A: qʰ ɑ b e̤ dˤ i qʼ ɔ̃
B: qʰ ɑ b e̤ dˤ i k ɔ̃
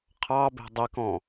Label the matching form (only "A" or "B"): B